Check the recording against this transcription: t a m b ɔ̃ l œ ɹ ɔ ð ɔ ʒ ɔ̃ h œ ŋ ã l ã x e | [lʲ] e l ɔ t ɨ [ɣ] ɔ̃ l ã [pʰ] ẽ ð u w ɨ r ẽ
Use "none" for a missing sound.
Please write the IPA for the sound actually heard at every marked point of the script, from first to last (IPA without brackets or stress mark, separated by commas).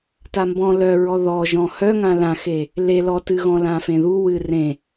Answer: l, ɣ, f